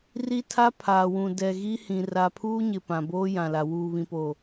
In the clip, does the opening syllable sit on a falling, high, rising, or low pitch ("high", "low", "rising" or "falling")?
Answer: high